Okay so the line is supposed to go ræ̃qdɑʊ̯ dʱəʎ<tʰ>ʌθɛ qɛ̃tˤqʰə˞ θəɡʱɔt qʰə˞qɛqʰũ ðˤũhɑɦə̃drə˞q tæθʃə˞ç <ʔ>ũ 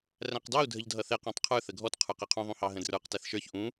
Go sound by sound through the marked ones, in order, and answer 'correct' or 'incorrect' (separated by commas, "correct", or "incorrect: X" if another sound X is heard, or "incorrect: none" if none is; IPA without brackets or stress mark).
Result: incorrect: dʱ, correct